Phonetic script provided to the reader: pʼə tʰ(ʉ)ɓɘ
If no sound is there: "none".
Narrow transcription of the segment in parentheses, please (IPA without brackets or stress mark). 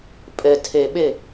ɘ